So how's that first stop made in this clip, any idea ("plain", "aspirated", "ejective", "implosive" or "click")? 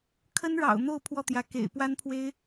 aspirated